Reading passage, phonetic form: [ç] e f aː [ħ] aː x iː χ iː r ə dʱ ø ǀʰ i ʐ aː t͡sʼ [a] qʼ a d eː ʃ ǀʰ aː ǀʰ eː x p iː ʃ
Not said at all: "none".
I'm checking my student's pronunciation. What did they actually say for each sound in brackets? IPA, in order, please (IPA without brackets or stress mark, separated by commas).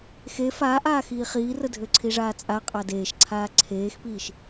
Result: x, ʔ, a